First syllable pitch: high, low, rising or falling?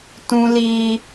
high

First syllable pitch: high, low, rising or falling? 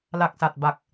low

